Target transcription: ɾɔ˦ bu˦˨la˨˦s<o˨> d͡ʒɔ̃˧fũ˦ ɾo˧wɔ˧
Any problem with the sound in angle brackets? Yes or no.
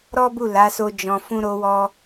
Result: yes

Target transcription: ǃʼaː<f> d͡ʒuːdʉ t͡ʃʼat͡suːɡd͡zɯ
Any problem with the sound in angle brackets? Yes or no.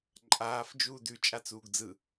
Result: no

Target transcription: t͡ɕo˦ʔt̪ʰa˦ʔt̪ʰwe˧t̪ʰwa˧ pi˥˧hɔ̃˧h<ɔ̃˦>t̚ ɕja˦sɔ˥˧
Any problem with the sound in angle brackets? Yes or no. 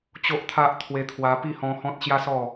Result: no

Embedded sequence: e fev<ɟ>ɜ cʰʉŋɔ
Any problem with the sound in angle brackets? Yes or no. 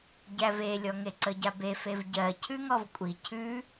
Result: no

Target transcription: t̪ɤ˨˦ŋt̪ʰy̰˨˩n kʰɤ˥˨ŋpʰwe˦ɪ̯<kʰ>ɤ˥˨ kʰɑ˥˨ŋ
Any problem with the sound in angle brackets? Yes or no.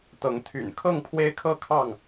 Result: no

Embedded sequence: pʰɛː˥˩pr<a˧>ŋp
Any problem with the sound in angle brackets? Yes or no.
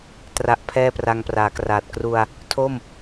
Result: no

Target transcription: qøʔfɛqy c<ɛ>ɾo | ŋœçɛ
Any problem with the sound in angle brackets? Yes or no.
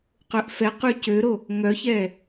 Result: yes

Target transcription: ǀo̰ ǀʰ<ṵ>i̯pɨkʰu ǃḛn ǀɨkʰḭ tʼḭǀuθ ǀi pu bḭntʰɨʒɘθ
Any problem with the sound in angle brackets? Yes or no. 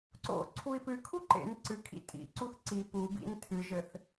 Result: yes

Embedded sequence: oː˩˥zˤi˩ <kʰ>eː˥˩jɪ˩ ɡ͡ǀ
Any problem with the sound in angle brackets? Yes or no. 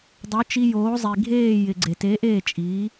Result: yes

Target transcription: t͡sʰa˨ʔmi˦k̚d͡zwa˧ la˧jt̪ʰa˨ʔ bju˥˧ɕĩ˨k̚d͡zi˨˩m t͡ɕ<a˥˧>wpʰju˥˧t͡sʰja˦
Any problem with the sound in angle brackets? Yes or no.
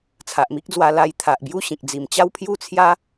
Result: yes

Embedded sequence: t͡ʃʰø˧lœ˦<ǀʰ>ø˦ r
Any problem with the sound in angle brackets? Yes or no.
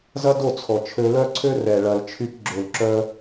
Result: no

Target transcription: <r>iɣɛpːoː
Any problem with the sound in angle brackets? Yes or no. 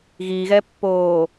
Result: yes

